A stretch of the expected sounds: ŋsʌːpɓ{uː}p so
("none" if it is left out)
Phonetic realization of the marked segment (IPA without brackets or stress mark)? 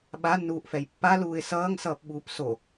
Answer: uː